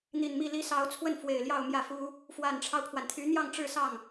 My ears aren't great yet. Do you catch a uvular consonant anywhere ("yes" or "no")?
no